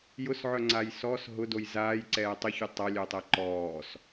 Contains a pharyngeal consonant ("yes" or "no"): yes